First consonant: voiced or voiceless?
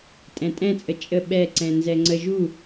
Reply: voiceless